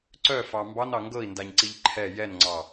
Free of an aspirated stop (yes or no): no